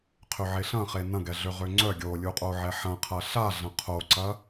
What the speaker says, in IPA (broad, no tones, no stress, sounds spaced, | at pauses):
qʰ ø ʕ e ɬ ɐ̃ χ e n ɐ̃ ɡ ɛ ɮ ø ʁ ø ŋ͡ǀ œ ɡʲ o lʲ u qʼ o ʕ ɛ ħ ɐ̃ qʰ ɐ ɬ a ɮ ɐ̃ qʰ o ǀ ɐ